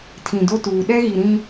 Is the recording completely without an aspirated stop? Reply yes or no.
no